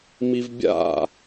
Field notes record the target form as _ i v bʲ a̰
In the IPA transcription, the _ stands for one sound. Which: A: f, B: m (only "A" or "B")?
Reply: B